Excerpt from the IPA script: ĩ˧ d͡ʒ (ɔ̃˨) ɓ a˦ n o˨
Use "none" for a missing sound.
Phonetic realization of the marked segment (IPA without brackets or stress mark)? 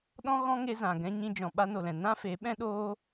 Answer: ɔ̃˨